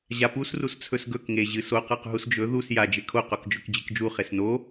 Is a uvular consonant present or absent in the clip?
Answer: present